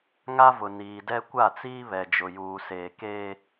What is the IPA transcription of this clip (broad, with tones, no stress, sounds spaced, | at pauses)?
ŋ a˦ v ʊ˨ n iː˨ d ɛ˦ kʷ a˦˨ t͡s iː˦ β ɛ˨ d͡ʒ ʊ˨ j uː˨ s eː˨ k eː˦